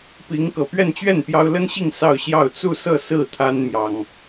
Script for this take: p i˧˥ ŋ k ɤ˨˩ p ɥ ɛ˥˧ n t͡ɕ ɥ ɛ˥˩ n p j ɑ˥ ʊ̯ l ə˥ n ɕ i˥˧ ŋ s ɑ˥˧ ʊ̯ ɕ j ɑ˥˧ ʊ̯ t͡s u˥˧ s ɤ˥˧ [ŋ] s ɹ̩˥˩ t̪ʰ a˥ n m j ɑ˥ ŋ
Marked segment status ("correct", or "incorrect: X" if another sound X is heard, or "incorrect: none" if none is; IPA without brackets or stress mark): incorrect: none